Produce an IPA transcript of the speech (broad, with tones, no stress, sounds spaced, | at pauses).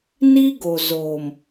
n i˦ ɡ o˨ z oː˨ m